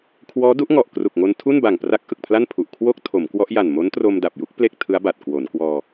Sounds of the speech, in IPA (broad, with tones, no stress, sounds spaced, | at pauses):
kʰ w ɔː˦˥ d u˦˥ ʔ ŋ ɔ˨˩ ʔ k r u˨˩ k̚ ŋ o˧ n tʰ u˥˩ n b a˨˩ ŋ p r a˦˥ k̚ ʔ ɯ˨˩ k̚ pʰ l a˥˩ n pʰ u˨˩ ʔ kʰ w o˥˩ k̚ tʰ o˩˦ m k w ɔ˦˥ ʔ j a˨˩ n m o˦˥ n t r o˧ m d a˨˩ p̚ j u˦˥ k̚ p l e˥˩ k̚ tʰ ɯ˦˥ a̯ b a˨˩ t̚ k w o˩˦ n k w ɔː˧